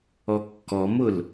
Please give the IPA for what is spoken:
ɔkːɔmʊl

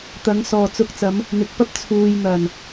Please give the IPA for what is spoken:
t̪ɐ˨˥ŋsɔː˨t͡sʊ˧k̚t͡sɐ˨˥m | n̪ɪ˨k̚pɐ˥p̚ t͡sʰuː˨jn̪ɐ˨˩n

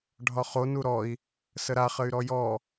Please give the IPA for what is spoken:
ɖʱɒχo nuɾɔi̯ | səɾa χəy̯ɾɔjɔ

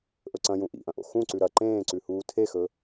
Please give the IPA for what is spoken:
ʔɵǀɐ̃jũ ʔḭʔɐ̃ʔo̰ xũǀʉ ɾɐ ǃẽːǀʉhuː tʰexɵ

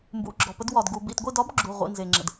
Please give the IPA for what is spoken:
mbṵ˩˧˩ɡ͡ǁɔ˩pə˧dwɒ˩d ɡu˩bḭ˧˩tɡʷi˥˨dɒ˧˥b ɡ͡ǁu˩˧˩ ʁʷḭ˩˧˩nze˩ŋ͡ǁə̰˩d

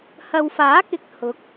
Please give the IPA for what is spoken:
hɐ˨wfaː˨˥kɪ˨k̚ hʊ˨˥k̚

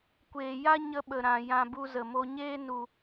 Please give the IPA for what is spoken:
kʷeː˨ja˦ɲə˧ ɓə˨ɾã˨ jã˧bu˧ zə˨mo˧ɲeː˦ nu˨

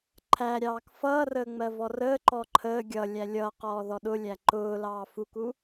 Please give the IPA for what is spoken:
ǃʰæɾʲɑːk fʌːrəː ŋ͡mɜvɔrəːǃɔ ǃʰəː ɡʲʌlʲæ lʲʌ qɔːðɔɗʊlʲæ ǃʊː lɑːfuku

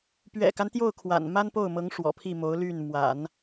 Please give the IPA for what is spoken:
pɥɛ̰˨˩ka˦nt̪jo˥˩ʊ̯ kʰwa̰˨˩nma˥npo˥˩ʊ̯mɤ˧˥ŋ ʂwɔ̰˨˩pʰi˥˩ mo˧˥ʊ̯ly˥˩n mwa̰˨˩˦n

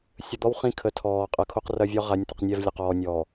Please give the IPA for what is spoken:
sʲə˨d̪ɔ˦w χĩ˦˨kʰə˨˦tʰɔː˨ qʼɐ˨kʰo˦q rɐ˦vʲɔ˦ ʁa˨˦nʲt̪ə˨qnʲɛ˦˨vlʲɐ˨ qɔː˨nʲɔː˨

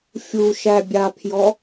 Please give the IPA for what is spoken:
fʲuʃæbʲapʰjɔ

